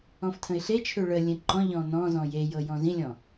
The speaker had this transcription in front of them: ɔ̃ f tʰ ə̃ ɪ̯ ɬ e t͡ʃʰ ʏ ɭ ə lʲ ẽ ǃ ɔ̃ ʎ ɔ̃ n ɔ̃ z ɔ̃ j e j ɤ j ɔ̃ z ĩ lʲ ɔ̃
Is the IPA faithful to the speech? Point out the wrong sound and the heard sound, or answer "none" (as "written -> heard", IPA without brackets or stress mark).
none